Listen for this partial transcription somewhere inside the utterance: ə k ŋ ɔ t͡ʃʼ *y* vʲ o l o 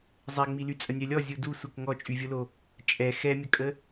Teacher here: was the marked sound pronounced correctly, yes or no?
yes